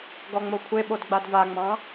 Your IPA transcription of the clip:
ɡɔŋ͡mokʷʰeɓod ɡ͡badvaŋ͡mɑ̃

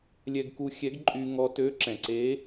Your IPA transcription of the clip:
lʲɛ˧ɡku˧xʲɛ˧˥ɡǃʼy˧ ŋɔ˧tø˧˥ ǁɛ̃˩ǀe˧˥

